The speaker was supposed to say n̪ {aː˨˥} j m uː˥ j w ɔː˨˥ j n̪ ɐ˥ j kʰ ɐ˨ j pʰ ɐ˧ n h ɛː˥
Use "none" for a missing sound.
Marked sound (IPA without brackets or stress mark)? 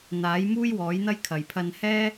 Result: aː˨˥